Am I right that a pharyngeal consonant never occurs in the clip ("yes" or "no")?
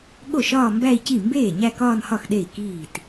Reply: yes